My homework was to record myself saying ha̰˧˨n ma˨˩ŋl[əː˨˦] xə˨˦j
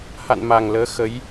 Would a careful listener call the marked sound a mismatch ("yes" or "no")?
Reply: no